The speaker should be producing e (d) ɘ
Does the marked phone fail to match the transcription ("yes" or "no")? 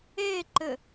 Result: yes